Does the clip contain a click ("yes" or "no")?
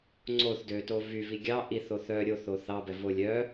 yes